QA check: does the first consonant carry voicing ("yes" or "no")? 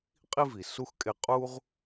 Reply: no